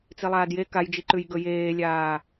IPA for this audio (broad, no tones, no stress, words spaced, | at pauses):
t͡silˠaːdje kajd͡ʒiǃʉj ɡɵjeːlʲaː